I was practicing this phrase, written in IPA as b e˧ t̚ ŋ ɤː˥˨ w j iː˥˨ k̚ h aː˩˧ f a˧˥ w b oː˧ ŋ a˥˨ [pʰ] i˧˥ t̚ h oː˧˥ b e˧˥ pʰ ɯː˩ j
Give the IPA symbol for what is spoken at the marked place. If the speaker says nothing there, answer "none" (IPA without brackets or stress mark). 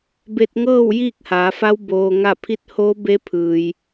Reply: pʰ